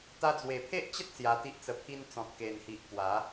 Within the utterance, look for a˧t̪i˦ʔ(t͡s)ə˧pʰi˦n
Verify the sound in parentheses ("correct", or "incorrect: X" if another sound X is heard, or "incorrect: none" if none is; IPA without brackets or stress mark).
correct